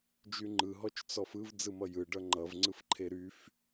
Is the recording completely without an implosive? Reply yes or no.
yes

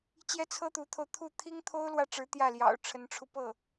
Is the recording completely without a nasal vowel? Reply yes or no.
yes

